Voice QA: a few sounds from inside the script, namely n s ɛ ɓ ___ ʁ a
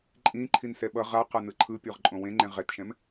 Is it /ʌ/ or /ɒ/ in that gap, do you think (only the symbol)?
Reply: ʌ